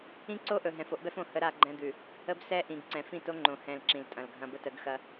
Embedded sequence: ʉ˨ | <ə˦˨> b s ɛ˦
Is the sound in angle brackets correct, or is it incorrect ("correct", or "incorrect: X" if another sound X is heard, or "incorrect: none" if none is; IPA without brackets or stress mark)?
incorrect: ə˦